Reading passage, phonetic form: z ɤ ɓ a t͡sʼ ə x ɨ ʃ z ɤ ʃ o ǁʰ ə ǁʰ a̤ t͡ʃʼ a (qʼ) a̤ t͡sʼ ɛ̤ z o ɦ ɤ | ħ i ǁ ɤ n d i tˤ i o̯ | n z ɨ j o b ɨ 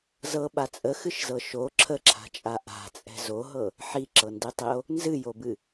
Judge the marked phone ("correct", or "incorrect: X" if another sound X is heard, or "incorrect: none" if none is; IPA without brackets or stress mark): incorrect: ʔ